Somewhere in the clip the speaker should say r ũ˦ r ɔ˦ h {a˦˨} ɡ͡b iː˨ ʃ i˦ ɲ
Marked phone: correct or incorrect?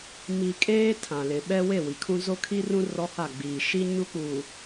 correct